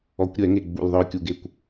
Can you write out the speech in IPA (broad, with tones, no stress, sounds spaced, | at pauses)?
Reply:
ɔ˨˩˦ kʷ ɾʲ ɛ˨˩˦ ŋ e˧˩ ɡ͡b ṵ˧˩ l ðˤ œ˧ ʊ̯ kʲ u˧˩ ɡ e˧˩ kʷ